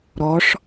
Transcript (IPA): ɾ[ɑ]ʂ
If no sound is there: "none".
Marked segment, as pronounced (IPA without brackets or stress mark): ɔ